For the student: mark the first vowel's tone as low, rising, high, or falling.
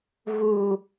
low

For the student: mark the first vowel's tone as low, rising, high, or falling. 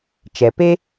low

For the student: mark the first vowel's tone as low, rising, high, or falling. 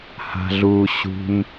low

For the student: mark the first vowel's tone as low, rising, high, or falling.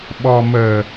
low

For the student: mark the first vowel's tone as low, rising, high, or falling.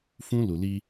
high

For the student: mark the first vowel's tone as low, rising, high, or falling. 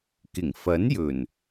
low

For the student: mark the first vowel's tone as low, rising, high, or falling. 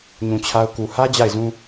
low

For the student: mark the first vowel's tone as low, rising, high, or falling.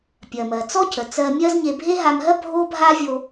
low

